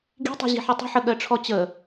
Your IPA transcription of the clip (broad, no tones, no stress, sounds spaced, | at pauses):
ɡ i̤ tˤ i̤ ʑ i̤ ħ i tˤ ə̤ ħ ə ɠ ɜ ʈ͡ʂʰ ɔ t͡ɕ ə